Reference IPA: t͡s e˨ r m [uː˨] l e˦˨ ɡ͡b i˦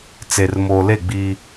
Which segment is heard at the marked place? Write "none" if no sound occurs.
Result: oː˨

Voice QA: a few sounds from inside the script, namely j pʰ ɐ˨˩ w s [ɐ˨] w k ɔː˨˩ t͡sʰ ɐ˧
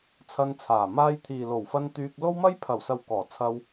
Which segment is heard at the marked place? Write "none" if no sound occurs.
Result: ɐ˨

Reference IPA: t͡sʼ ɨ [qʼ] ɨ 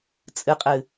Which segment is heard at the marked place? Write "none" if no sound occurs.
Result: qʼ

